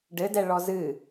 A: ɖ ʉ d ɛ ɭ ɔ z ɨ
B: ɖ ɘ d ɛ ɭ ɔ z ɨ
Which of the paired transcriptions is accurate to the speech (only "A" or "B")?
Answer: B